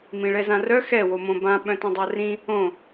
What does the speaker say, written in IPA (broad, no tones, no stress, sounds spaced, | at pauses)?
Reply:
m ĩ ɭ ɛ z ã r œ x ɛ w o m õ b ã ɓ œ̃ t õ dˤ a r ĩ | õ